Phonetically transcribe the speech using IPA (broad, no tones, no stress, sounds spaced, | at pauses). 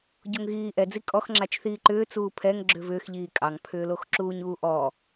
ɟ o ŋ ɣ iː ʔ ɛ d͡z i kʼ ɔ x ŋ͡ǁ a t͡ʃ θ iː ǃ ʏː t͡s uː pʰ ɛ ŋ ɡ͡ǁ ʏ v ʏː x ʎ iː kʼ ɑ ŋ pʰ ʏː l o x ǁ uː ɲ uː ʔ ɔ